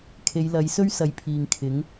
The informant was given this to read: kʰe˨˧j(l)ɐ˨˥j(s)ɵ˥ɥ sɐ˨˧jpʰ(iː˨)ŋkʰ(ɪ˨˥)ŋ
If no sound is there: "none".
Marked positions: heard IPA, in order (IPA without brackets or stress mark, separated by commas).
l, s, iː˨, ɪ˨˥